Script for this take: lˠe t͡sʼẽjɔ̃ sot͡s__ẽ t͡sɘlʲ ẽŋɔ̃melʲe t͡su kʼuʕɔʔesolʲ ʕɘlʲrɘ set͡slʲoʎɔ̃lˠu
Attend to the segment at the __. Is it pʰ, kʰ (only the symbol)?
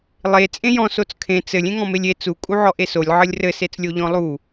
kʰ